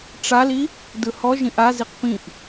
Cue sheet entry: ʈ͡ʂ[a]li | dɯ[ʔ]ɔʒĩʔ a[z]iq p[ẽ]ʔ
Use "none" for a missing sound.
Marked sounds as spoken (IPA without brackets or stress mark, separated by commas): a, h, z, ĩ